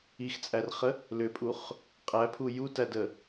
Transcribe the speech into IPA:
ixt͡sʼærχə | lʏpʼuχ | qʼæpʰu jutædə

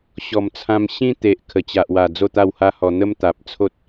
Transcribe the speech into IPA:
ɕɔ˨˩mt͡sʰã˧m ɕĩ˧t̪e˨ʔ kʰə˨˩t͡ɕa˨ʔwa˨˩ d͡zo˥˧t̪a˥˧wha˦hɔ˧ n̪ə˦mt̪a˨p̚ t͡sʰo˦t̚

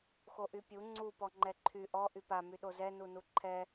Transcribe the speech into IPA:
xoʔypʲu ŋ͡ǀu pɔŋ͡ǃɛǃʰy ʔɔ ʔypa myɗozɛ nunuǃʰɛ

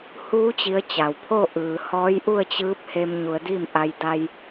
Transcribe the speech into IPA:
huː˧˥ t͡ɕi˧˥ə̯t͡ɕa˩w pʰo˥˨ʔɯː˩ hɔː˧˥jʔu˥˨ə̯t͡ɕɯː˧˥p̚ he˧mɲu˩˧ə̯di˥˨m ʔa˧j da˧j

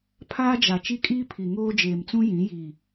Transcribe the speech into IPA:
pʰaː˦d͡ʒa˨ t͡ʃi˦kʼiː˦ pʰi˨ŋoː˦ d͡ʒeː˨mt͡sũ˦ jĩ˨˦ jiː˨

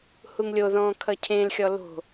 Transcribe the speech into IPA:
huŋlʲo ðɔ̃ːkʰʌcʰẽl xʲɔlo̤

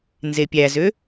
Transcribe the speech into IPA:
nzepʲæzø

